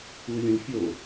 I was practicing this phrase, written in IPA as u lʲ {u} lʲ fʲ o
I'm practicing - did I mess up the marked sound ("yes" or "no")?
yes